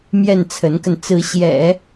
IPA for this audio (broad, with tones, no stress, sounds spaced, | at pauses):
m j ɛ˥˩ n t͡sʰ ə˧˥ n k ə˧ n t͡s ɹ̩˧˥ ɕ j ɛ̰˨˩˦